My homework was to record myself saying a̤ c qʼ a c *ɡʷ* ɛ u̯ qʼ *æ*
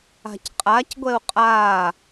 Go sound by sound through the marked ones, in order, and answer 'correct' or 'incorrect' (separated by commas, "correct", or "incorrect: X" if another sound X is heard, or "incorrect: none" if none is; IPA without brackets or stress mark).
correct, incorrect: a